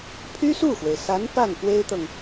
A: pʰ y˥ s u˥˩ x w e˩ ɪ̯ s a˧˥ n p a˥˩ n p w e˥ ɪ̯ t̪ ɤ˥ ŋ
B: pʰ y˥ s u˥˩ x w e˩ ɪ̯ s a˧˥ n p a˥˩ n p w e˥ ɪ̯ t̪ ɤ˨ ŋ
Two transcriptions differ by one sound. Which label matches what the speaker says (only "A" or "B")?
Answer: B